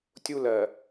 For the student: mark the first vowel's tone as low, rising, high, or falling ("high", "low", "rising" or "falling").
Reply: high